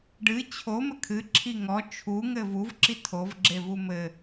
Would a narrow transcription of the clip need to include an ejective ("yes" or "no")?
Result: no